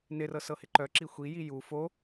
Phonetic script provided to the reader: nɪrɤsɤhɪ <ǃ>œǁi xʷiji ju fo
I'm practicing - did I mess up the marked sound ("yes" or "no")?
no